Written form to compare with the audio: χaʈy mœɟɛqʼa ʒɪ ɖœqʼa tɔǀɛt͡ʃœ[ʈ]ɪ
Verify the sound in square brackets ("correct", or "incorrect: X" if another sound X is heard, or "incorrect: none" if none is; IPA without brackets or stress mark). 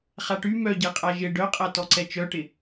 correct